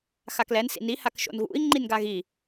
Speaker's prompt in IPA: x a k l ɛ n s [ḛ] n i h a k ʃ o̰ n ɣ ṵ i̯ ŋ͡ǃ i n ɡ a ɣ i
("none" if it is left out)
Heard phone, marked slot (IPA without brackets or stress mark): ḭ